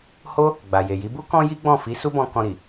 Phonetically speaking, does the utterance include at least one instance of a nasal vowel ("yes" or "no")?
yes